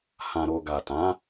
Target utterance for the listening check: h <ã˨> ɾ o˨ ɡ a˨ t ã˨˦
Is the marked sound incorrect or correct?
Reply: correct